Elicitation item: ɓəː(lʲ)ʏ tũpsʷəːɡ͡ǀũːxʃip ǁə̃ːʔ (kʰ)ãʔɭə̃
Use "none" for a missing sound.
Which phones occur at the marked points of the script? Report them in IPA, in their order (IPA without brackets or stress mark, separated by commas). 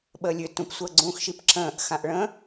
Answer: lʲ, x